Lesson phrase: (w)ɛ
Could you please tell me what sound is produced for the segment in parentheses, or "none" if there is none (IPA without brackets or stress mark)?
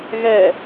ɣ